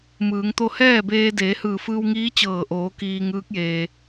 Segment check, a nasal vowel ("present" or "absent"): absent